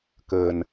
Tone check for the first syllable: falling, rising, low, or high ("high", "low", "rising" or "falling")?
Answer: low